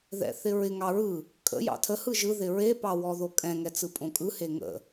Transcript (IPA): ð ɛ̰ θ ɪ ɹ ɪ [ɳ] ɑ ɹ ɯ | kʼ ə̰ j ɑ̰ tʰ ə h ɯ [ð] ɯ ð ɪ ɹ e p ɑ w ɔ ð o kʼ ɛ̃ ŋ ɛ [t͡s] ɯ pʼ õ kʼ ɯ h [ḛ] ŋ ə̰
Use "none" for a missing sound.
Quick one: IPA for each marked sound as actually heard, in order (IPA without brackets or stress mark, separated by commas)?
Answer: ŋ, ʒ, t͡s, e